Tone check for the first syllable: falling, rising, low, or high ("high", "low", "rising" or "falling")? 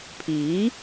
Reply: rising